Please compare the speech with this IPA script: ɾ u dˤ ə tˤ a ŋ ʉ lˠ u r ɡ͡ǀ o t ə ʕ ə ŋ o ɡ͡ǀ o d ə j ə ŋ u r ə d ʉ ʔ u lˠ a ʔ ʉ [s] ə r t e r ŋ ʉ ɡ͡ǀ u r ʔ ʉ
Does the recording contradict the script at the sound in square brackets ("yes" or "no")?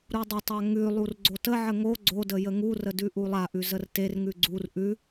yes